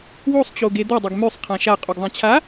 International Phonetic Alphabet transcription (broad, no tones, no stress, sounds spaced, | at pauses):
w o sˤ t͡ɕ o ɡ e d̪ ʌ dˤ ɵ ɡ m ø sˤ qʰ ã ʃ a qʼ u ɡ ðˤ ã t͡ɕʰ a